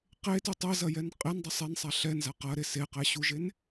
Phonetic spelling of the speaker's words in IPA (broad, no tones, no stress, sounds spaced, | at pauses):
q e t y tˤ e z ɐ j ɛ n qʼ e n dˤ ɐ sˤ e n sˤ a ɬ ɛ n z a q ɐ ɾ e s e q ɛ ɕ u ʒ e n